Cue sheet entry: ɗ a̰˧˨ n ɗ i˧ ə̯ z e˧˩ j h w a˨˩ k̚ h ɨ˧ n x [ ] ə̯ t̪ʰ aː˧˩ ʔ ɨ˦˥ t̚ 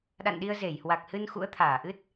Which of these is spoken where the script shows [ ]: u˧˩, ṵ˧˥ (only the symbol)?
ṵ˧˥